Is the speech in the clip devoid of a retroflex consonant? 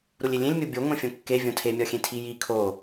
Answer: yes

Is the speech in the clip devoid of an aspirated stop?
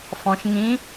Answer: yes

